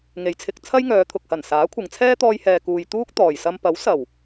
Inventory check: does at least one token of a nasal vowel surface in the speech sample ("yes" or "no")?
no